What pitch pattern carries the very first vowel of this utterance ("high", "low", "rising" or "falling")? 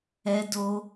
high